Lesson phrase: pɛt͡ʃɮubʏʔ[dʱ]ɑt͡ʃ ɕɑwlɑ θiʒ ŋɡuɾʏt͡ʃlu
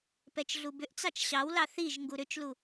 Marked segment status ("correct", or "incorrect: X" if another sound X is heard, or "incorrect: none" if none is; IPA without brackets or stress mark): incorrect: t͡s